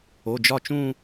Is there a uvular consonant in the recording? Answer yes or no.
no